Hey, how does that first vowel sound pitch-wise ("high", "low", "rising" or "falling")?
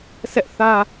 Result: high